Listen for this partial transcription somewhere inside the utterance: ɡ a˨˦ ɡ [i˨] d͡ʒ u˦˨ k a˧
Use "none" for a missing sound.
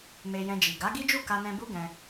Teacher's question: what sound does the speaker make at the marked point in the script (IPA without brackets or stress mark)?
i˦